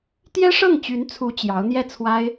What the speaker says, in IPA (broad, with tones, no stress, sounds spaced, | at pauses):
t̪ j ɛ˥ ʂ ɤ˥˩ ŋ t͡ɕ y˧˥ n t͡sʰ u˧˥ t͡ɕ j ɑ˧˥ ʊ̯ n̪ j ɛ˥˩ t͡sʰ w a˥ ɪ̯